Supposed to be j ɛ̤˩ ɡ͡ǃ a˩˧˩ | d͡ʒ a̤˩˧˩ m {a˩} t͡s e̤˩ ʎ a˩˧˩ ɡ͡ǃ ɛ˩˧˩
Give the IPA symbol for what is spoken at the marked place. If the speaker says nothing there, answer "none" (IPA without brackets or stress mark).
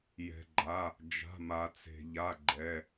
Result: a˩